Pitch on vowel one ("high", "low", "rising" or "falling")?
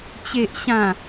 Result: low